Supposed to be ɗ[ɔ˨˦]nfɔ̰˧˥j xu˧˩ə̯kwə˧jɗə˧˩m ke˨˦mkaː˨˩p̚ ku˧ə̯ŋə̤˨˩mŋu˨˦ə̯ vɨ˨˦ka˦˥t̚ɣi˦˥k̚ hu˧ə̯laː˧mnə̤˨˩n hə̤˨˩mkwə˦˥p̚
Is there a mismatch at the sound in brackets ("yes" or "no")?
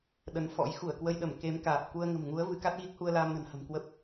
yes